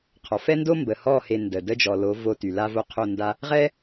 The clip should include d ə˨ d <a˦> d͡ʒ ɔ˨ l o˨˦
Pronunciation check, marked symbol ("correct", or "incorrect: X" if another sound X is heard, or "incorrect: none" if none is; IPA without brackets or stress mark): incorrect: ə˦